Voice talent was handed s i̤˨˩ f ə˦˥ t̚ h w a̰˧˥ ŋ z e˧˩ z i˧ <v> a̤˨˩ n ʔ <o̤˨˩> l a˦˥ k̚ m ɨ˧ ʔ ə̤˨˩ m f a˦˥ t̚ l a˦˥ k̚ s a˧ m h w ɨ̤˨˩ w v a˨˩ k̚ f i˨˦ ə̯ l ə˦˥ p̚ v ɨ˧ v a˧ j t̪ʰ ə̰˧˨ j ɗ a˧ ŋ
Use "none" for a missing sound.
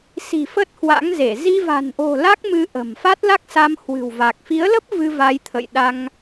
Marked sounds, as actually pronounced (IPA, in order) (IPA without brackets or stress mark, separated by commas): v, o̤˨˩